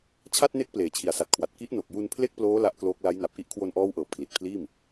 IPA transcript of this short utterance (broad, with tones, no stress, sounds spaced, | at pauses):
t͡ɕʰ a˥˩ t̚ n e˦˥ k̚ p l eː˩˦ t͡ɕʰ i˨˩ a̯ s a˨˩ t̚ kʰ w a˨˩ t̚ k i˦˥ ʔ n o˨˩ k̚ j u˧ n pʰ l e˥˩ k̚ p l oː˦˥ l a˦˥ ʔ k l oː˦˥ k̚ l a˦˥ j n a˨˩ p̚ ʔ i˦˥ ʔ kʰ w o˧ n ʔ ɔː˦˥ w ʔ ɤː˨˩ p̚ kʰ l i˨˩ t̚ pʰ l iː˥˩ m